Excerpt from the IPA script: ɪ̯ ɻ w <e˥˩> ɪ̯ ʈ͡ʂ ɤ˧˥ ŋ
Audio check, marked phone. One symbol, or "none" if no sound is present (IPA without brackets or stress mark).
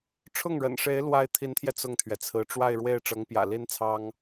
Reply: e˥˩